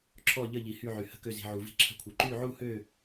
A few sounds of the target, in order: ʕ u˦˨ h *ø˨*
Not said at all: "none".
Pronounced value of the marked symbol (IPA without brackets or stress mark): ø˦˨